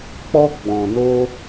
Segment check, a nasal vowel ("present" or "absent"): present